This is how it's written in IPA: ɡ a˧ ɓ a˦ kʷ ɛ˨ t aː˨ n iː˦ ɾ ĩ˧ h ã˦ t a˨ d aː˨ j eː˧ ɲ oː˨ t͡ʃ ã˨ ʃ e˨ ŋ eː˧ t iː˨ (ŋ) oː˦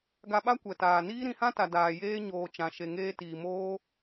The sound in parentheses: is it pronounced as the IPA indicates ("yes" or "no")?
no